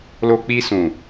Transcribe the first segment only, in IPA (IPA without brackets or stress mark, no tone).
l